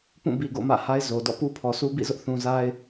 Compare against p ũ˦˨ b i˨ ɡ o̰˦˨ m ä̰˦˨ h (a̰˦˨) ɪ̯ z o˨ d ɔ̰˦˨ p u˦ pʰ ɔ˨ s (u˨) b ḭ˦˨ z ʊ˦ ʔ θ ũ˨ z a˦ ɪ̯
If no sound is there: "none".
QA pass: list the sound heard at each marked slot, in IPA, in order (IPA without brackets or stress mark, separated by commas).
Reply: a˦, u˦